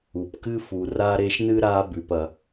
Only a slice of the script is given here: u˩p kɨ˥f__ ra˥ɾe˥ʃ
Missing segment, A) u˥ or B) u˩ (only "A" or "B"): B